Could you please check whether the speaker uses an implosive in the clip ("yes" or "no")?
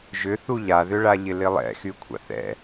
no